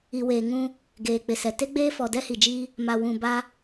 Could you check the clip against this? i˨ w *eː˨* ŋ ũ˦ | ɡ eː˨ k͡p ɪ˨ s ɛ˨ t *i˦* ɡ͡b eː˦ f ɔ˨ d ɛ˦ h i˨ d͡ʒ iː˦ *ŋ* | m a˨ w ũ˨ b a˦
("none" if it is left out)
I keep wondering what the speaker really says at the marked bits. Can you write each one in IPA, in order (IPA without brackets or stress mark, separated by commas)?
eː˨, e˦, none